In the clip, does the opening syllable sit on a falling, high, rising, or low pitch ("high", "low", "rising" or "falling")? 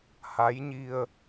rising